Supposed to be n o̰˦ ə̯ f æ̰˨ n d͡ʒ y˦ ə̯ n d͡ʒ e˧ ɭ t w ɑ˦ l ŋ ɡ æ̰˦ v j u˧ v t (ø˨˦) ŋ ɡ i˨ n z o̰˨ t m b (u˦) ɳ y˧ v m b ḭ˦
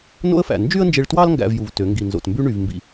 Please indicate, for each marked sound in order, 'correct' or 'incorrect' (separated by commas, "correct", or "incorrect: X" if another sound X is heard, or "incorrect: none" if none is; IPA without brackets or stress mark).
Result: correct, incorrect: y˦